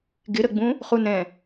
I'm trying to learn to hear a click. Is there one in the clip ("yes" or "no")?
no